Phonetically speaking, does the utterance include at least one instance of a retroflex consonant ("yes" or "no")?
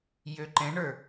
yes